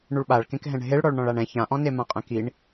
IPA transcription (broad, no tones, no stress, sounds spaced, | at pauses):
ɳ u ɭ ɓ a ɭ k ẽ k ɦ ɛ̃ ɳ ɦ e ɭ ɽ ɔ ɭ ɳ ɔ̃ ɭ a ɳ ɛ̃ ç ã ʔ ɔ̃ n e m ã qʼ ɛ̃ k i ɳ